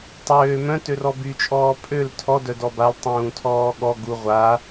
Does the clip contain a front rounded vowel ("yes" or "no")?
yes